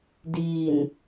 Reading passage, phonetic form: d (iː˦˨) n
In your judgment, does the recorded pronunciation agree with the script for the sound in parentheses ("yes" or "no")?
no